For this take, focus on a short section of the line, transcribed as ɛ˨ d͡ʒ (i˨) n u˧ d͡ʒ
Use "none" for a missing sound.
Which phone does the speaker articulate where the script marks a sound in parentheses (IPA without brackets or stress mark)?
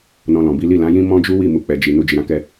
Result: i˨